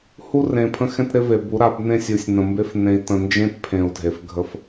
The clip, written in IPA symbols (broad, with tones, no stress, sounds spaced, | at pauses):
h u˦ r ẽ˨ pʰ ə̃˦ x ɛ̃˦ t ɾ ɪ˦ v e˨ b u˨˦ ɾ a˨˦ b n ẽ˦ sʲ u˨ sʲ n ə̃˨ m b e˦ f n ẽ˨ i̯ t ə̃˨ n d͡ʒ ẽ˦ t pʰ ẽ˨ u̯ dʱ e˨ f ɡʱ ə˦ f